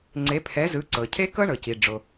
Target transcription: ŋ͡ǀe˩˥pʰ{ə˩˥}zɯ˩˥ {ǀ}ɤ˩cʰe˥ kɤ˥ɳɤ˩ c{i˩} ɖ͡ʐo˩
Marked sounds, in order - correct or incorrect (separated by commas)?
incorrect, correct, correct